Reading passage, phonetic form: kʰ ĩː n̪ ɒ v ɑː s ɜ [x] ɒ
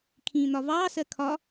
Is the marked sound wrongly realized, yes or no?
yes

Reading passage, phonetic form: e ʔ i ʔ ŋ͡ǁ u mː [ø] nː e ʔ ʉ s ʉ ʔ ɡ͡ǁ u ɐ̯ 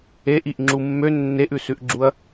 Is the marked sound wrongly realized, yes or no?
no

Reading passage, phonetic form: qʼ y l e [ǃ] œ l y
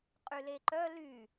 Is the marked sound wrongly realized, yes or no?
no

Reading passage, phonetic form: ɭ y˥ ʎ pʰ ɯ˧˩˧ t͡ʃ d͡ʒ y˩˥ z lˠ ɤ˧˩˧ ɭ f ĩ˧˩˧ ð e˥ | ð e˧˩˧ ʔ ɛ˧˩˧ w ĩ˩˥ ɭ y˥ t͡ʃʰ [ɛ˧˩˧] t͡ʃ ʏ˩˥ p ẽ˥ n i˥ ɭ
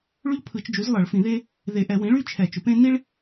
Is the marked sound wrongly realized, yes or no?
no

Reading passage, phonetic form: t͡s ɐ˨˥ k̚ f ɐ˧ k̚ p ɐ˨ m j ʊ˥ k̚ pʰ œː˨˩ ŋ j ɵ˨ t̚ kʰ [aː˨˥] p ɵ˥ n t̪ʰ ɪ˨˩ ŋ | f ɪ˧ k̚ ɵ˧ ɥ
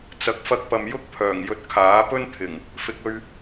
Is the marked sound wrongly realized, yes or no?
no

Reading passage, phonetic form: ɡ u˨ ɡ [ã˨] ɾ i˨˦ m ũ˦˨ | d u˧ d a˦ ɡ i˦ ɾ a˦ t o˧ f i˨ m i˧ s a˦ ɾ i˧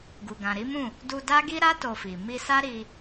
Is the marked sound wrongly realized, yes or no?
no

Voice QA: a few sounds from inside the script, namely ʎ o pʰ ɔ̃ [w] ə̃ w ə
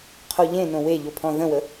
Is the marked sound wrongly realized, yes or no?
yes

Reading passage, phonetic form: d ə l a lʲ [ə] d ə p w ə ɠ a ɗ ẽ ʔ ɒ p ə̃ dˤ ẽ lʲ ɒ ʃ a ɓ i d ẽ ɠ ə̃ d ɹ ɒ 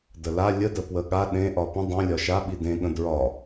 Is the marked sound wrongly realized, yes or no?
no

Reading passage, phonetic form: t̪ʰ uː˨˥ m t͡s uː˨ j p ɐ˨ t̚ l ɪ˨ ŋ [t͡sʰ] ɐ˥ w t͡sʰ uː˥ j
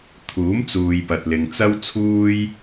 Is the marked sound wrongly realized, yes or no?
yes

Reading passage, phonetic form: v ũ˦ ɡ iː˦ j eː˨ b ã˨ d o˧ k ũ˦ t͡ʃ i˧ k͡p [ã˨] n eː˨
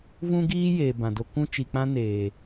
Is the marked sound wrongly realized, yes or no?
yes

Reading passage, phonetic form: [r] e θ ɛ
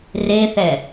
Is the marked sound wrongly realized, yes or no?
no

